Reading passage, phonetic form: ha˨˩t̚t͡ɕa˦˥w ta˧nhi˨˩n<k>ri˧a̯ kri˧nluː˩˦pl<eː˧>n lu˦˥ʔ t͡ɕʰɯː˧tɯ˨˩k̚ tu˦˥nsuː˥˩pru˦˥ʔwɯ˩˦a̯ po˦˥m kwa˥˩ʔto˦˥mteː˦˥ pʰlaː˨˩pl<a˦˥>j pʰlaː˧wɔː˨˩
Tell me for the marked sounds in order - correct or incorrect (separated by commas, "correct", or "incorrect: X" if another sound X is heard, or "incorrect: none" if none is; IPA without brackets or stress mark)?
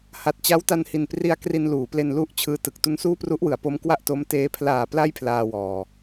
incorrect: p, incorrect: e˧, correct